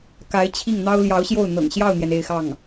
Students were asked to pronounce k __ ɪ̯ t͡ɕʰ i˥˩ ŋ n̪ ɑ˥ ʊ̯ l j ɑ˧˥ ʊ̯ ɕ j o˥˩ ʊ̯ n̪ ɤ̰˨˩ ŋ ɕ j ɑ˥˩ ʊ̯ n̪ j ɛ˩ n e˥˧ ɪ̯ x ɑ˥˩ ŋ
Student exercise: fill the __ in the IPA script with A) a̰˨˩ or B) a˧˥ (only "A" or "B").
B